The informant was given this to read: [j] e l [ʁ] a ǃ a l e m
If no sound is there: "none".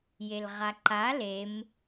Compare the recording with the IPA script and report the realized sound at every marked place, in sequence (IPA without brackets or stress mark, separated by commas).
j, ʁ